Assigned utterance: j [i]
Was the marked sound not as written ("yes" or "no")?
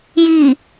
no